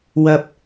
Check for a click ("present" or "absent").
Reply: absent